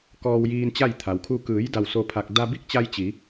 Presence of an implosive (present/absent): absent